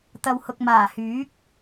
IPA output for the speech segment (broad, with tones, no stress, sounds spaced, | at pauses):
t̪ ɐ˨ w h ʊ˨ k̚ m aː˨˩ h yː˨˥ k̚